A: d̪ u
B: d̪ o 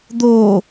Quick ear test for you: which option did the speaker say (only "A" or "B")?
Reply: B